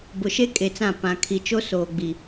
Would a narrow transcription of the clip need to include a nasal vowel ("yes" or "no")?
yes